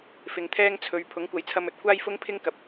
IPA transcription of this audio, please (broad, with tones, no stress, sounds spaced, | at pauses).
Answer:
f ɪ˨ ŋ t̪ʰ ɛː˥ ŋ t͡sʰ ɵ˨˧ ɥ pʰ ʊ˨˥ ŋ kʷ ɐ˨˥ j t͡sʰ ɐ˧ m ɵ˨ t̚ kʷ aː˥ j f ʊ˥ ŋ pʰ ɪ˥ ŋ k ɐ˨ p̚